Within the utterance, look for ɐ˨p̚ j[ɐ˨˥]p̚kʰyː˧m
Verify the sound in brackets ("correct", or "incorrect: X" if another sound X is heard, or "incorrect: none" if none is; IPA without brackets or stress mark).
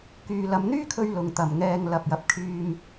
correct